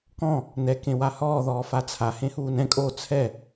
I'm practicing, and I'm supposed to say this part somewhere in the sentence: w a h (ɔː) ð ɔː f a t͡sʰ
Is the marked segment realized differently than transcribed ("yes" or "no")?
no